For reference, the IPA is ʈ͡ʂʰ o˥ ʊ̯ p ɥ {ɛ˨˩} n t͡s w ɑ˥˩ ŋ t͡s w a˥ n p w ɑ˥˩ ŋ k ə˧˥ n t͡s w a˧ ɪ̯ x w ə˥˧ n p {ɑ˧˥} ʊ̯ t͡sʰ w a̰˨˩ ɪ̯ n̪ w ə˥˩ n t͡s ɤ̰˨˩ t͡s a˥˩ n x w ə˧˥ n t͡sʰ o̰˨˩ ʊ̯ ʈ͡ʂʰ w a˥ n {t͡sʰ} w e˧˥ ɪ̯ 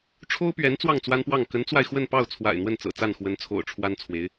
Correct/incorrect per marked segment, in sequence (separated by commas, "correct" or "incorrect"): incorrect, incorrect, correct